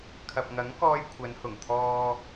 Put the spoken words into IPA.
kʰ ɐ˨ p̚ ŋ ɐ˨˥ ŋ k ɔː˧ j kʷʰ ɐ˨˧ n h ʊ˨˩ ŋ t̪ʰ ɔː˧

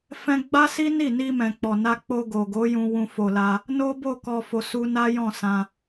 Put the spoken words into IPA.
f ɛ̃˧ ɡ͡b a˦ s i˦ n i˦˨ n i˧ m ɛ̃˨ k͡p ɔ˨ n a˧ k͡p o˧ ɡ o˨ ɡ o˨˦ j ũ˧ w ũ˧ f o˧ l a˧ | n o˦ b o˦˨ k ɔ˨ f o˨ s u˧ n a˦ j ɔ̃˦˨ s ã˧

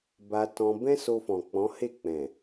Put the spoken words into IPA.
b a˧ t ɔ̃˧ b ɛ̃˦ s o˧ f ɔ̃˨ k͡p ɔ̃˨˦ h e˦˨ k͡p ɛ̃˨

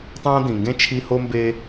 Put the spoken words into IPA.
tˤ ãː˥ d̪ ĩ˩ ŋ ɡ ẽ˥ t͡ʃʰ i˧ h o˧ m b e˧

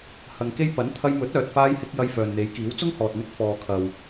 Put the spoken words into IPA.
h ɐ˨ ŋ k e˧ j p ɐ˨˥ n t̪ʰ ɐ˧ j m ɵ˨˥ t̚ œː˨ t̚ f aː˧ j h ɪ˧ k̚ j ɐ˧ j f œː˨ n n̪ e˨˥ j k iː˨˥ w t͡s ʊ˥ ŋ h ɔː˨ t̚ n̪ ɪ˧ k̚ f ɔː˨ kʰ ɐ˨ w

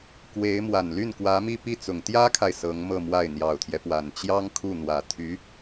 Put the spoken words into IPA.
k w e˧˥ ɪ̯ m w a˨˩ n l y˥˩ n k w ä˧˥ m i˥˧ p i˥˩ t͡s ʊ˨˩ ŋ t̪ j ä˥ kʰ a˨ ɪ̯ s ɤ˧˥ ŋ m ɤ˥˧ m w a˥˩ ɪ̯ n̪ j ɑ˨˩ ʊ̯ t̪ʰ j ɛ˦ p w a˨˩ n t͡ɕ j ɑ˥ ŋ kʰ u˥˩ n̪ w ä˨˩ t̪ʰ y˧˥

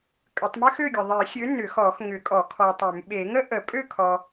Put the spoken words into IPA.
kʼ ə˨˩˦ tˤ m ʏ˥ x ø˥˨ ɡʲ ə˨ ðˤ e˨˩˦ xʲ ø˨˥ n ʏ˨˩˦ x ɔ˨˩˦ x ŋ ʏ˨˩˦ kʼ ɔ˨˩˦ kʰ ɔ˨ tˤ ʏ˨˩˦ m ɓ e˨˩˦ ŋ ə˥ ʔ ə˨˩˦ pʼ ø˥˨ kʰ ɔ˨

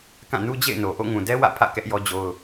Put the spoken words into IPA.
k ã˦˨ n u˦ d͡ʑ ḛ˦˨ ɪ̯ n o˨ ʔ o̰˦˨ ŋ ũ˨ d ɛ˦ w ä̰˦˨ pʰ ä̰˦˨ k ɛ˦ ʔ j ɔ˦ d͡ʑ o˦ ʊ̯

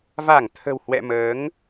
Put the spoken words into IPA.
v a˧˩ ŋ t̪ʰ ə̤˨˩ w h w ɛ̰˧˨ m əː˨˦ ŋ

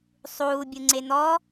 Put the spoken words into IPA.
sˤ uː bʲ u ŋ͡ǀ e n̪ ɔ

